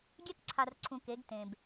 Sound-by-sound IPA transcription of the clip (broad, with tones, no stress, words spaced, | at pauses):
ɡʲɛ˦kǀʰa˨rǀʰũ˨ ke˨˦ɡtẽ˨b